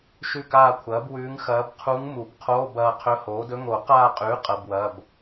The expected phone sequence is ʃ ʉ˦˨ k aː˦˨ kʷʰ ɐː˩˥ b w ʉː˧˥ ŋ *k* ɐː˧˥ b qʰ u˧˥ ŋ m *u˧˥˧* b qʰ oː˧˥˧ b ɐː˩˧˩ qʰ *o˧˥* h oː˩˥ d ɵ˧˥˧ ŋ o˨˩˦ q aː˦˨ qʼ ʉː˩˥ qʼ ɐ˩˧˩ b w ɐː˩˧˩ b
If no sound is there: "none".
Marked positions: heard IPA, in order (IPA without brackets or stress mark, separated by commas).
x, u˨˩˦, ɵ˧˥